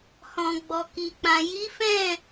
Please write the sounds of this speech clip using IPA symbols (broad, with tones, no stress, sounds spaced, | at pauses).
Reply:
h ɔ̃˨ ɡ͡b ɔ˨ k i˨ k͡p ã˨ j i˨˦ f ɛ̃˦˨